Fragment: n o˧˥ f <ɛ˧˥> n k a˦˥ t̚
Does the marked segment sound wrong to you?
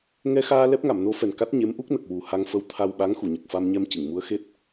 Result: yes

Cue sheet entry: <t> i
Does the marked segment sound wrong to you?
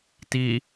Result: no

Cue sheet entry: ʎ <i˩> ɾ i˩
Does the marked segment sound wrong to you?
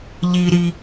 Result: no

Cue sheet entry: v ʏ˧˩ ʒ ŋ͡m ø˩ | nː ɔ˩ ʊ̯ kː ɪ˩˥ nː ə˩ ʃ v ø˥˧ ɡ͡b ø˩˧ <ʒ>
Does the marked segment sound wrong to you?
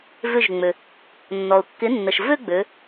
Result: yes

